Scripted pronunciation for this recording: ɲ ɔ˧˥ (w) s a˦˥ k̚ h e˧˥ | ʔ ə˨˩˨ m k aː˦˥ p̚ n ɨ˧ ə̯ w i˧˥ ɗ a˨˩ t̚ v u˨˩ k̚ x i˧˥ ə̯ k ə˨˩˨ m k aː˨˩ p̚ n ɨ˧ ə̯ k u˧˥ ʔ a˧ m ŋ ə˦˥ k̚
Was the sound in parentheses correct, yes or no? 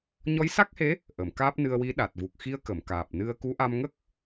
no